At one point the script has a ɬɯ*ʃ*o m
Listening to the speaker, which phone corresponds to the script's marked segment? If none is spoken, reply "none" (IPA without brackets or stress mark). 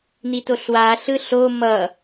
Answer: ɬ